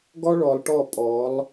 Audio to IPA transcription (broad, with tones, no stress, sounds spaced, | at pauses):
ɡ ɔ˦ ɭ ɔ˨ lˠ ʈ ɔ˦˨ pʼ ɔ˨˦ lˠ